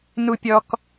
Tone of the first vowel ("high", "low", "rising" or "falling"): high